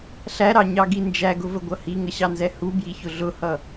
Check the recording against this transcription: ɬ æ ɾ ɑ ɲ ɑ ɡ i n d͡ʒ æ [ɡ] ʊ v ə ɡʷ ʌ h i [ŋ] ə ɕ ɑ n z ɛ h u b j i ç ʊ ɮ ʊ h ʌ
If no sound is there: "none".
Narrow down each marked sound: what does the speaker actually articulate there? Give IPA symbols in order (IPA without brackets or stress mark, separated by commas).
ɡ, ŋ